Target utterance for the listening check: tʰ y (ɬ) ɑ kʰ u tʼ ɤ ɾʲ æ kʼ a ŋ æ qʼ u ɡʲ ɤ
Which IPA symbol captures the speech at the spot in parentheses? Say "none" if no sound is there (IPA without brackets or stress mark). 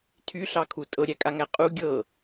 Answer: ɬ